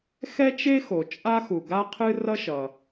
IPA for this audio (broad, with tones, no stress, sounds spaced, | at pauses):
x ɛ˥ t͡ʃ e˥ x o˩ t͡ʃʼ a˥ x u˩ ɡ a˥ qʰ ɨ˥ r ʌ˥ ʃ ʌ˩